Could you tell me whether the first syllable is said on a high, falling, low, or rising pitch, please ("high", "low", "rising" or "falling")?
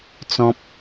high